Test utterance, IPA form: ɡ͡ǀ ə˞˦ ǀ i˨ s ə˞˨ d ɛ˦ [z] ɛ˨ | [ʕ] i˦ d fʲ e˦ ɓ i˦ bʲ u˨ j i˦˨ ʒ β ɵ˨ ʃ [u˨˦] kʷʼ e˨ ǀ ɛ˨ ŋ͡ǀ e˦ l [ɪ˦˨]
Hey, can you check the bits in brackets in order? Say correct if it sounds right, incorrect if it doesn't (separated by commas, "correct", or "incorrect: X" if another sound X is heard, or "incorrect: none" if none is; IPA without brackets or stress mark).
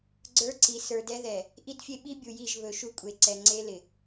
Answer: incorrect: ð, incorrect: ʔ, incorrect: u˦, incorrect: ɪ˨